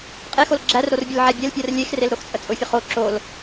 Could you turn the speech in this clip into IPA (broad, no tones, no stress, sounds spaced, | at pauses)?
qʼ e x o l ɡ͡ǁ æ r ɾ o r bʲ ʊ l ʕ æ bʲ e l pʲ ɜ r lʲ e x r e l ɾ o x t͡sʼ ə t͡sʼ ʊ fʲ ə χ o ǁ o l